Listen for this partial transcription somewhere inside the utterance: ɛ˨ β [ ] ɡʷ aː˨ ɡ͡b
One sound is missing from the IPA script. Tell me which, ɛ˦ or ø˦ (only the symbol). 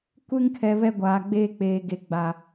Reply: ɛ˦